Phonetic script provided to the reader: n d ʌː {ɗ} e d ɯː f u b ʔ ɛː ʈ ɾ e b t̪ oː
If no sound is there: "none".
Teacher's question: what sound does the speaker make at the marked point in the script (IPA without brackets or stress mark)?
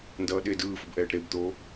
ɗ